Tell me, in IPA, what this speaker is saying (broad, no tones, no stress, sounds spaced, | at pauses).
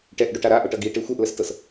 ʈ ɛ ʔ ɖ o ʈ a ɾ a ʔ o ʈ ʌ ɡ i ʈ e xʷ ɛ ʔ l ə s t ɤ s